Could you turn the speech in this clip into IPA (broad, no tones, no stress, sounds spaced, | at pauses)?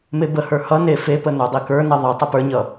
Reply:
m e b ə h ə˞ h ʌ n e f e p ə n ə˞ dˤ i k ə˞ n ʌ ðˤ ʌ tˤ ʌ p ə˞ ɲ ʌ